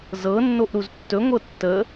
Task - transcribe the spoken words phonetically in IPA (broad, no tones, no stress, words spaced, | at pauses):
zɤnːoʔɾuz tːɵŋʷɤ tːə